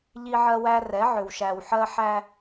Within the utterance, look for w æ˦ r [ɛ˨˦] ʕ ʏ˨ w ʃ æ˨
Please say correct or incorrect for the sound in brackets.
correct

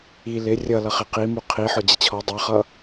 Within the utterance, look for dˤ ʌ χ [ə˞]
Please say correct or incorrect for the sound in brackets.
incorrect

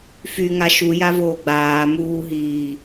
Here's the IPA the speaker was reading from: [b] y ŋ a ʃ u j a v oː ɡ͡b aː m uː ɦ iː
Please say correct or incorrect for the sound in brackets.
incorrect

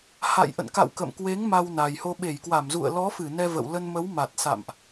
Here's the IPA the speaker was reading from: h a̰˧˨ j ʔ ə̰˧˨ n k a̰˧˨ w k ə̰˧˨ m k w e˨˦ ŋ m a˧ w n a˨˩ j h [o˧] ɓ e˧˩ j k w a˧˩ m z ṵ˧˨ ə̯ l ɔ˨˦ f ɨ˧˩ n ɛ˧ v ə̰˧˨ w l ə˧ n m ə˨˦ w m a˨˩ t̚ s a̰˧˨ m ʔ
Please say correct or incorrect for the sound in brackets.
correct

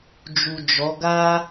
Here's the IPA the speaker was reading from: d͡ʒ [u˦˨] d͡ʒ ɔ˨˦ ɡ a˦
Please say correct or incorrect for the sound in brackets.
incorrect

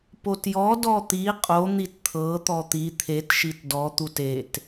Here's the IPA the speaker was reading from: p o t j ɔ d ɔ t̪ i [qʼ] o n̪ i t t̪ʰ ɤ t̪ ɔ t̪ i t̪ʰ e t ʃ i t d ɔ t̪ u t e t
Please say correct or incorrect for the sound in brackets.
correct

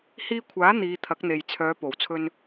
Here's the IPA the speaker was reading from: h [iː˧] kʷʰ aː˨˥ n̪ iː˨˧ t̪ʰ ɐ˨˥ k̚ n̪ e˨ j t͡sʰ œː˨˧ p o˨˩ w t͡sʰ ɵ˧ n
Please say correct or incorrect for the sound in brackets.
correct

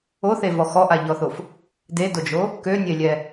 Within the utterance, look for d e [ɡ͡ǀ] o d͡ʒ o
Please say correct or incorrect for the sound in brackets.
incorrect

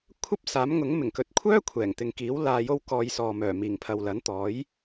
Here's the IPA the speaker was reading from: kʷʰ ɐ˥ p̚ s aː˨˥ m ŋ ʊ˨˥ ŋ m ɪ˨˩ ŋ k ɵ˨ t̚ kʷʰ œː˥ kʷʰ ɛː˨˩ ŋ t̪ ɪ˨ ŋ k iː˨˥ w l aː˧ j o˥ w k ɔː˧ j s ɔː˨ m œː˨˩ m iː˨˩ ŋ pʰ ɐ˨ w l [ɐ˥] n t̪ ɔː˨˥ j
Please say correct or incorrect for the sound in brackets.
incorrect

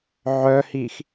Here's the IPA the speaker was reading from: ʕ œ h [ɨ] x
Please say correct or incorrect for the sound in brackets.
incorrect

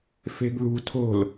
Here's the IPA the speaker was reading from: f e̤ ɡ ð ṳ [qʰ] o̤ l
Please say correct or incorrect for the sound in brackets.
incorrect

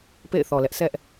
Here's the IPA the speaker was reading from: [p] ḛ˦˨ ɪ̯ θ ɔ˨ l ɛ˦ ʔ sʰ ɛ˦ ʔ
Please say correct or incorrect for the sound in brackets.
correct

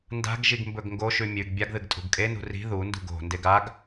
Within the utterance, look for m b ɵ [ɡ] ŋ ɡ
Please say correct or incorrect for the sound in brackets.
correct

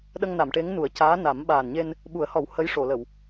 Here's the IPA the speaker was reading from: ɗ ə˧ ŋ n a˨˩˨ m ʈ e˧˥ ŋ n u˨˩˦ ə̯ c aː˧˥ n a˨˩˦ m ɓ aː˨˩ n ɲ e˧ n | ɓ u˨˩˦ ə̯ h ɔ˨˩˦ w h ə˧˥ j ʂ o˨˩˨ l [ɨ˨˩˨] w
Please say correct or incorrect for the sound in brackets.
incorrect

